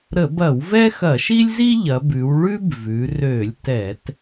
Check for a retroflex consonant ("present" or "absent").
present